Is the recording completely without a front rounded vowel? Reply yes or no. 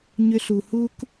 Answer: no